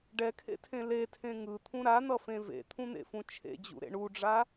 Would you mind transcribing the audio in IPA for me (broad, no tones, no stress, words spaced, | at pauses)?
ɖɛkʰḛtʰẽ letʰẽ ŋɯt̪ʰũ ɾan̪ʌfẽ vḛt̪ʰũn̪ḛfũ t͡ʃʰḛd͡ʑṵɾḛ ɳuɖ͡ʐa